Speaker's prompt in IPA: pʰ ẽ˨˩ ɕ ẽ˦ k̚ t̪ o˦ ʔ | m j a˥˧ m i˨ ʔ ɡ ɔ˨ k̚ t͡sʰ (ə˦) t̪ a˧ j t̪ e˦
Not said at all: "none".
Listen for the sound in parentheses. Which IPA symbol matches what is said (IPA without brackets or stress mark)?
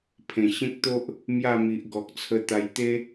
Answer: ə˧